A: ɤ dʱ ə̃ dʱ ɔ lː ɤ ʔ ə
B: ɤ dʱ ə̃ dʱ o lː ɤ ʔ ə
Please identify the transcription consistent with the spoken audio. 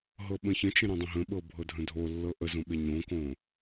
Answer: B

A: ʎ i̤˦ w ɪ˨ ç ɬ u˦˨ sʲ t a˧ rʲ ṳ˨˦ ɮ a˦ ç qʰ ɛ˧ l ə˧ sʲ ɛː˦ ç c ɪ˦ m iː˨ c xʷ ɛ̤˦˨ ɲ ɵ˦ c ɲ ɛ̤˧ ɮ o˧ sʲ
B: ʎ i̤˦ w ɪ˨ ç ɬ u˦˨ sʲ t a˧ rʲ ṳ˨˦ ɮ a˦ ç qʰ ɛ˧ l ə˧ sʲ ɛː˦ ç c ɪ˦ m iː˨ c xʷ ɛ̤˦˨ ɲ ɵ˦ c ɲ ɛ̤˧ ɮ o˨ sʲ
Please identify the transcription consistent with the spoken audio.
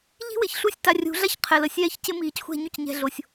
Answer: A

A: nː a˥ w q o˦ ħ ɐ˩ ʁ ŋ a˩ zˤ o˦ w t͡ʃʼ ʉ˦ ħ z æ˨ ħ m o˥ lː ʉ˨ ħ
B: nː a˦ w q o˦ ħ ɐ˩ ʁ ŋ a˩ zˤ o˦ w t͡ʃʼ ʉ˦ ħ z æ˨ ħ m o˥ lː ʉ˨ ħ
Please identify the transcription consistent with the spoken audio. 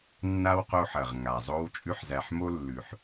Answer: A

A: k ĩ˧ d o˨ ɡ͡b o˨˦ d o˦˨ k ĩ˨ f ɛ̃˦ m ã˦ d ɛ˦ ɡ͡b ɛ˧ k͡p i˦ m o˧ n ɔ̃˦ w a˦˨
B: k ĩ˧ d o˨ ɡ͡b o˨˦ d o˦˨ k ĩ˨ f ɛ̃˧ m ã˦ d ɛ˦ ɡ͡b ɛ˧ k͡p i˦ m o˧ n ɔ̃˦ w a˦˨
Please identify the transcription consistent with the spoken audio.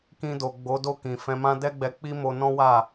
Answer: B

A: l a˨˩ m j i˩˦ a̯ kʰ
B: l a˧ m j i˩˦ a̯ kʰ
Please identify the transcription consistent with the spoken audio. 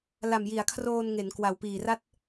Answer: A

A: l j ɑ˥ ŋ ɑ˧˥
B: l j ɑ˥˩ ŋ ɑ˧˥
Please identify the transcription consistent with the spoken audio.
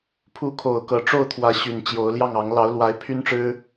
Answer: B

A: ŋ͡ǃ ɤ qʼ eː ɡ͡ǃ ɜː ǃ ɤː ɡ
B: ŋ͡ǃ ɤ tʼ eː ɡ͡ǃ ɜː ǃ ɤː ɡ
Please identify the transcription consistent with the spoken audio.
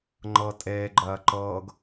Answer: B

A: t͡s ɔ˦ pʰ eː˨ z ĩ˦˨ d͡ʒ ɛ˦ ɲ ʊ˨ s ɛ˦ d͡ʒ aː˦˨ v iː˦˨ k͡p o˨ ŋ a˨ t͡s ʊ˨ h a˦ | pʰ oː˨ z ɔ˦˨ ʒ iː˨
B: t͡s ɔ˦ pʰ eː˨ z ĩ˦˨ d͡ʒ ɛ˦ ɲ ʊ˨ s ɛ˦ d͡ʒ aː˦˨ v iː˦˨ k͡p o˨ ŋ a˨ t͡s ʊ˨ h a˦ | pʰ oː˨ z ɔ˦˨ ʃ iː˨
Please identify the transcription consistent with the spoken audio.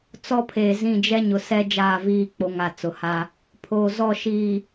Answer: B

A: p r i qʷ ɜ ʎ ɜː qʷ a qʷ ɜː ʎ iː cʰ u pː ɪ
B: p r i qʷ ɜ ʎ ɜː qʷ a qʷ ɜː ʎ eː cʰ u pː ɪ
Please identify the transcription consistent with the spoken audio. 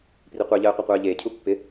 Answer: B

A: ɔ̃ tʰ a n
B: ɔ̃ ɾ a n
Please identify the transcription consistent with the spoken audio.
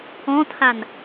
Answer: A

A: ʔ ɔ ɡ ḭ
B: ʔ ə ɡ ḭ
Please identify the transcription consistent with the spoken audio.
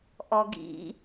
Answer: A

